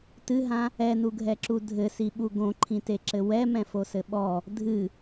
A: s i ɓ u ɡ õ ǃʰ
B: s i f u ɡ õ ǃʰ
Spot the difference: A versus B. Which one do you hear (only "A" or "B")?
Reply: A